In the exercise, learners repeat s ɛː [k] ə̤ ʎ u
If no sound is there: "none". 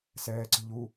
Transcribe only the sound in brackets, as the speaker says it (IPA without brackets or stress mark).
ǀ